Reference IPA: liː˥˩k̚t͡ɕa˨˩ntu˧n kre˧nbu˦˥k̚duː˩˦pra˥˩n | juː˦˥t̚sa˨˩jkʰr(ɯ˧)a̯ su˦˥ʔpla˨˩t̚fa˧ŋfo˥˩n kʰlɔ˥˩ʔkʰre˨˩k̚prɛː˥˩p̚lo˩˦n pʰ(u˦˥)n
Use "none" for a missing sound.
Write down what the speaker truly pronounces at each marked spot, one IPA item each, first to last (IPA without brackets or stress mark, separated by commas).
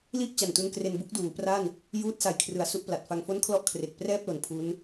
ɯ˩˦, u˦˥